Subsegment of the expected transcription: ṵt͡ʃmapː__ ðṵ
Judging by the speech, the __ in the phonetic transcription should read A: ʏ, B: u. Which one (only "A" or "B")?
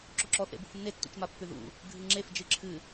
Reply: A